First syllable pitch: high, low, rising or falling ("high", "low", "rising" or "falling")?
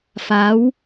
rising